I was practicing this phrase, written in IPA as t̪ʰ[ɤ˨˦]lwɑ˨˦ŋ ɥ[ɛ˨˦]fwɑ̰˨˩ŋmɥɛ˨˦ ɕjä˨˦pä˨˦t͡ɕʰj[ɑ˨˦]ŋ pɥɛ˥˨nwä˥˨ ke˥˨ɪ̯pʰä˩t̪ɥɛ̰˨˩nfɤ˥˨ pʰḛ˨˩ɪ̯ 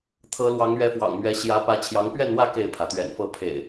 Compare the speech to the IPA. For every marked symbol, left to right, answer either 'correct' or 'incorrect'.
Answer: correct, correct, correct

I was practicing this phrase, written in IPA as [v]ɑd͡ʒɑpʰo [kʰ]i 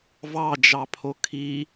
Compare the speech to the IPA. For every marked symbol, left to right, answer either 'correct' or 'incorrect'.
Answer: correct, correct

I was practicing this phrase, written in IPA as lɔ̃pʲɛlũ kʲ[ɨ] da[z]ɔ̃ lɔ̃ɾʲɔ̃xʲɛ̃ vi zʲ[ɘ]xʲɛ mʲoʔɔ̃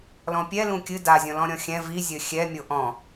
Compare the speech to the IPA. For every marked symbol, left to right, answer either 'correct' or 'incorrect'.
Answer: correct, incorrect: zʲ, correct

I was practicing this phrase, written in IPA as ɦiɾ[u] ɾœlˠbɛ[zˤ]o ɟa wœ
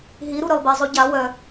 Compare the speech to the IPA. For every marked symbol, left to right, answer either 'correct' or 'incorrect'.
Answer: correct, correct

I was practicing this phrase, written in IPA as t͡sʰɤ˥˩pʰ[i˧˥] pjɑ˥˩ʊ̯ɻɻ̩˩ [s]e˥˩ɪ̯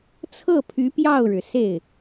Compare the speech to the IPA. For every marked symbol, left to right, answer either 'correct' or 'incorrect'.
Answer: incorrect: y˧˥, correct

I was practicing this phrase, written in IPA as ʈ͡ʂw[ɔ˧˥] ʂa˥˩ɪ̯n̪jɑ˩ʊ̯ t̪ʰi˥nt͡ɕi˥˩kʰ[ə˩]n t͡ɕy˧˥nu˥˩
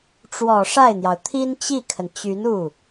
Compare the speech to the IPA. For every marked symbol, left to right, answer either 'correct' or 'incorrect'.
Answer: incorrect: ɔ˨˩, correct

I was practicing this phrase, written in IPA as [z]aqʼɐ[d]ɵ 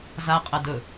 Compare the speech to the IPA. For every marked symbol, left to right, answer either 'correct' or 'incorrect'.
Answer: correct, correct

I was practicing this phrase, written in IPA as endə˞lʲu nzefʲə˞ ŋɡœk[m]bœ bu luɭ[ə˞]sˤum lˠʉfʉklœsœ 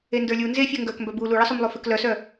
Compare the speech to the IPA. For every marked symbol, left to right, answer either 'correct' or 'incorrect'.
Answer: correct, incorrect: ə

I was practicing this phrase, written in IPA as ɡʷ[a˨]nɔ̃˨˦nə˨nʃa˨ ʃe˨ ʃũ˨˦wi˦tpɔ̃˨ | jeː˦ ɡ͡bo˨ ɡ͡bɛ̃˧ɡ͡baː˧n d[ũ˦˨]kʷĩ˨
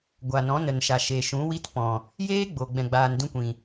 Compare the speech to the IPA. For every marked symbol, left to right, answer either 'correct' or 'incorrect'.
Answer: correct, incorrect: ũ˦

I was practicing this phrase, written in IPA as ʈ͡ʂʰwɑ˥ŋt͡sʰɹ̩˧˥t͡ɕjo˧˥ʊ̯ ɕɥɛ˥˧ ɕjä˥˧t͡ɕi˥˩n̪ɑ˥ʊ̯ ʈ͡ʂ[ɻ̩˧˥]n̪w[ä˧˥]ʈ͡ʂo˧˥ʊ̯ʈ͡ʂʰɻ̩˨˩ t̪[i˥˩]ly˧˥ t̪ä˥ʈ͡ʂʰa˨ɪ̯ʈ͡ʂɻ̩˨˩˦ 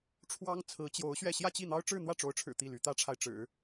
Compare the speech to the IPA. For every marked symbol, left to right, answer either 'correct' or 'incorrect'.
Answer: incorrect: ɻ̩˥˧, incorrect: ä˥˩, correct

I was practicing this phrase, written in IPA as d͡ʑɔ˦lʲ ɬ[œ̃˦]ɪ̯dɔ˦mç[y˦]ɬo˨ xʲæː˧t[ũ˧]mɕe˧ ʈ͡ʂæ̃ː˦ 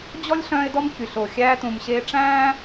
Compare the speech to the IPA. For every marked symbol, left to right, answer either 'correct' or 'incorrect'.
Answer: incorrect: œ̃ː˦, incorrect: y˨, incorrect: ũ˨

